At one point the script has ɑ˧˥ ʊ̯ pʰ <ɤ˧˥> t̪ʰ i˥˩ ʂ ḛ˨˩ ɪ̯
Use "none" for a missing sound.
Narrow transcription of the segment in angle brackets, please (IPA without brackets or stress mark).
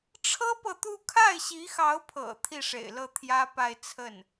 ɤ̰˨˩